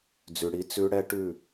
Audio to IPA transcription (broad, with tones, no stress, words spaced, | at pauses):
d͡zʉ˨ ɽi˦t͡sʉ˦ ɽɛ˦ʈʉ˦˨